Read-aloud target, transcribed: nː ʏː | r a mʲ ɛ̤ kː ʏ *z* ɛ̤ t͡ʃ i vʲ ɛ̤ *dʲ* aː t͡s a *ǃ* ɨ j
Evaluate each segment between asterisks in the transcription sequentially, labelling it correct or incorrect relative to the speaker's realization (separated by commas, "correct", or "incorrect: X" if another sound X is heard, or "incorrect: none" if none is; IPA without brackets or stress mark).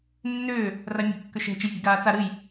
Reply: incorrect: ʃ, incorrect: ɡ, incorrect: ɾ